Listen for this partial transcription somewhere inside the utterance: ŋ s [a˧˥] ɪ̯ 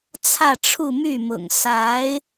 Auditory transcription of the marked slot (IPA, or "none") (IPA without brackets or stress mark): a˧˥